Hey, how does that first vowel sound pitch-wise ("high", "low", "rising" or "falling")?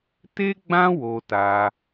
high